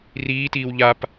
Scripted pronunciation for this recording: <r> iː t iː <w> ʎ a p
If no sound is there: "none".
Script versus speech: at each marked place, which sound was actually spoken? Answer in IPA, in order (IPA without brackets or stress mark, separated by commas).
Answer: r, w